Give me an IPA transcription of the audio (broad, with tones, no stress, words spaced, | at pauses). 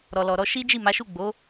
ɾɔ˨lɔ˨ɾɔ˧ ʃi˦d͡ʒi˦˨ ma˨˦ʃu˦˨ ɡ͡bo˨˦